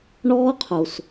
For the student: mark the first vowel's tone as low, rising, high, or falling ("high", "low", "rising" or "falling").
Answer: high